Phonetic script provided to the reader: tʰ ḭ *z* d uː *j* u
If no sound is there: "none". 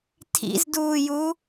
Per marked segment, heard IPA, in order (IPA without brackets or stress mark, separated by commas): z, j